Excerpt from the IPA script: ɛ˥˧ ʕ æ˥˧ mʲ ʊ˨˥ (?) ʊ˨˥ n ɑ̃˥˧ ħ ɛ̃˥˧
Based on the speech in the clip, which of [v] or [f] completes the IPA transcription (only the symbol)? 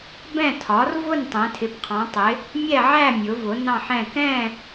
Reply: v